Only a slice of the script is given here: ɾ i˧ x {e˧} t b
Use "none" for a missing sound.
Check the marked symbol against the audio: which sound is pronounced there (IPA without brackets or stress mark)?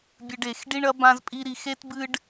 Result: e˦